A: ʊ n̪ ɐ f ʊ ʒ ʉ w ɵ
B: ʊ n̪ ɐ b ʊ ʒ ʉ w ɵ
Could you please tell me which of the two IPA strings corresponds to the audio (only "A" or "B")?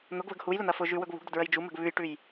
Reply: A